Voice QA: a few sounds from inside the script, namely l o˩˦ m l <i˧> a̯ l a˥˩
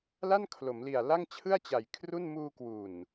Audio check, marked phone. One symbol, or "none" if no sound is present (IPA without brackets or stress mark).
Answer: i˨˩